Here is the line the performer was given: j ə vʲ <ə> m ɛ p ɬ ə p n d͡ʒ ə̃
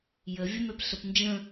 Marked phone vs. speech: correct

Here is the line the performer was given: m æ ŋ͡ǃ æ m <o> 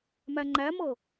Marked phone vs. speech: incorrect: ɤ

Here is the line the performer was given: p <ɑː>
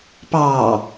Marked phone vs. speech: correct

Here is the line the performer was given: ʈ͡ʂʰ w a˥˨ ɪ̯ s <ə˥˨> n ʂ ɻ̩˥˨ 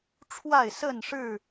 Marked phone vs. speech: correct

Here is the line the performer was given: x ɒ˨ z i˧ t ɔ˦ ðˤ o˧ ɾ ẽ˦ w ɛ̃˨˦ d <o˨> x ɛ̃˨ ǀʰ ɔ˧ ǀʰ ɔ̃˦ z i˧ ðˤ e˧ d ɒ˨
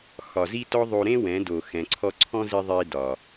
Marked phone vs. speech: correct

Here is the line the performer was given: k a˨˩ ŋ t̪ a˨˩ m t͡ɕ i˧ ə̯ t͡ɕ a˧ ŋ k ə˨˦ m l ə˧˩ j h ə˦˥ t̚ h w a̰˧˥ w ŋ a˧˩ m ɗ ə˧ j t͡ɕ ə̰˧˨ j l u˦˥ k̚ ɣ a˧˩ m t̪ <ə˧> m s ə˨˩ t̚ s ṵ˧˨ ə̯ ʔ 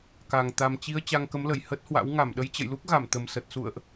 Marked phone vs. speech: incorrect: ə˨˩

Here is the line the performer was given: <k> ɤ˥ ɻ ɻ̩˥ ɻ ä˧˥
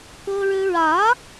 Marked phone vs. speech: correct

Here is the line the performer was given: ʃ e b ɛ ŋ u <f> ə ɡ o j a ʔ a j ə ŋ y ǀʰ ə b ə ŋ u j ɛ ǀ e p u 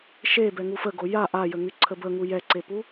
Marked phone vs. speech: correct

